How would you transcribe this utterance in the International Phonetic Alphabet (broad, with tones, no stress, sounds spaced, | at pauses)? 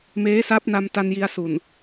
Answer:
m eː˦˥ s a˦˥ p̚ n a˧ m t a˧ n j i˧ a̯ s u˨˩ n